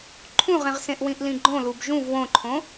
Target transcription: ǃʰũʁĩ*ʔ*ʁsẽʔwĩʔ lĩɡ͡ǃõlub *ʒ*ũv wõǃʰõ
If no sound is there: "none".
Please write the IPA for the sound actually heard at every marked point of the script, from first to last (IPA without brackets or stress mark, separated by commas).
none, ʒ